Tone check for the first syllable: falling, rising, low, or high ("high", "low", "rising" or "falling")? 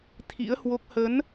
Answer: rising